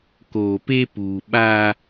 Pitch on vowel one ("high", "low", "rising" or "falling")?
low